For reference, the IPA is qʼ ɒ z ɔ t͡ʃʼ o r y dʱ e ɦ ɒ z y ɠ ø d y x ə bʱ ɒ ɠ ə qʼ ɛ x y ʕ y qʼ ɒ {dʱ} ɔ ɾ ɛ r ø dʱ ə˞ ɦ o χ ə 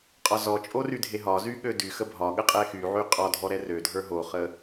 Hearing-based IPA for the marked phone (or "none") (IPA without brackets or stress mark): dʱ